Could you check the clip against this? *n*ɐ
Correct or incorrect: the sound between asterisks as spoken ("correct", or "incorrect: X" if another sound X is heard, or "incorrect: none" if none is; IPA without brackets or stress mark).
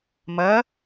incorrect: m